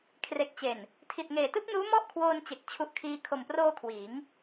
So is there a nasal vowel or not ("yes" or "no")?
no